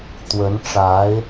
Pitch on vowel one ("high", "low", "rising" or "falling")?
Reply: rising